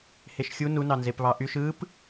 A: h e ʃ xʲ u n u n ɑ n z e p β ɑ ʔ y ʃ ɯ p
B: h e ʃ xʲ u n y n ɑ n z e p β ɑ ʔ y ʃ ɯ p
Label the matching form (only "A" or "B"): A